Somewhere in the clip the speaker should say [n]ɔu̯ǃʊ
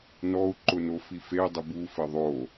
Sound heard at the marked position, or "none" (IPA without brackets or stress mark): n